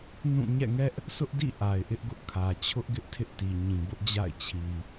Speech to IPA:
n ũ˦˨ ɲ ɛ̰˦˨ ŋ ɛ˦ ʔ | sʰ ʊ˦ ʔ d ḭ˦˨ ʔ a˨ ɪ̯ ʔ ɪ˦ ʔ ɡ ʊ˦ ʔ kʰ ä˨ t͡ɕʰ ʊ˦ ʔ ɡ ɪ˦ ʔ tʰ ɪ˦ ʔ t i˨ ɲ ĩ˨ b ʊ˦ ʔ d͡ʑ a̰˦˨ ɪ̯ t͡ɕʰ i˨

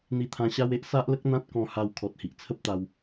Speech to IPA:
n̪ i˧ t̪ʰ ã˧ ɕ a˦ w e˦ ʔ s a˦ ʔ l ə˦ k̚ n̪ ã˦ t̚ k ɔ̃˧ h a˧ w kʰ ɔ˨ t̚ h i˨ ʔ t͡sʰ ə˦ p̚ t̪ a˧ w

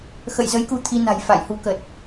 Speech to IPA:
x ə̰˧˨ j z ə˨˦ j k u˨˦ t̪ʰ i˧ n a̤˨˩ j f a̰˧˨ j h u˨˦ k ə˨˩ t̚

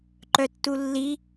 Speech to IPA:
ǃ œ tː u lː i

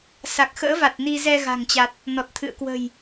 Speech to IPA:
s a˨˩ k̚ x ə̰ː˧˥ v a˨˩ t̚ n i˧ z ɛ˧ ɣ a̤˨˩ ŋ t͡ɕ a˨˩ t̚ | n ɔ˨˩ t̚ t̪ʰ ɨ̰˧˨ ə̯ k w ə̤˨˩ j

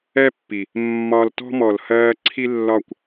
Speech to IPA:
ɛ˦ pː i˨ | mː ɒ˧ l t ɔ̤˦ m ɔ˨ l h ɜː˧ ǀʰ i˦ lː ɒ˦˨ kʷ

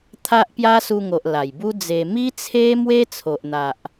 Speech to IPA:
t̪ʰ a˦ ʔ p j a˦ s u˧ ŋ o˨ ʔ l a˨˩ j b u˦ d͡z e˧ m i˦ t͡sʰ e˦ m w e˦ t͡sʰ o˨ ʔ n̪ a˨ ʔ

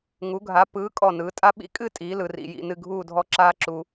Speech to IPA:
ŋ u˩˧ ɡʱ a˩˧ p ɯː˩˧ kʼ ɔ˧˩ n ɯː˩˧ tʼ a˥ ɓ ḭ˥˧ kʼ ɨ˥˧ tʼ iː˩˧ l ɯ˩˧ r ḭ˧ j ḭ˥˧ n ɨ˥˧ ɡʱ uː˥˧ dʱ ɔ˥ ǁ aː˥ ǁ u˧

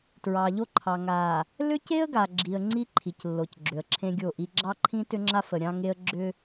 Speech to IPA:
t ɹ ɑ˨ ʎ o˦ ǃʰ ɑ˨ ŋ a˨ | l ʏ˦ c e˦ ə̯ ɡ a˨ ɡ͡ǁ i˨ ə̯ ŋ͡ǀ i˦ ǃʰ i˨ c lː o˨ c ɡ͡ǁ ʏ˨ ə̯ ǁʰ ẽ˦ ɡʲ o˦˨ ʔ i˦ ɡ͡ǁ ɑ˦ ǃʰ ĩ˦ t ʏ˦ ŋ͡ǁ a˦ f ə˨ ɾʲ ɑ̃˦ ŋ e˦ ə̯ ɡ͡ǁ ʏ˦

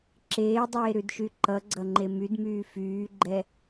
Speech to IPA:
ǁ eː dˤ eː ɾ ʉ d ʃ y ǃ ʌ ɡ͡ǀ ʌ ŋ͡ǃ e m y d m yː f yː ɡ͡ǃ ɛ

